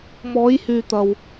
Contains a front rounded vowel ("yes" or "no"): yes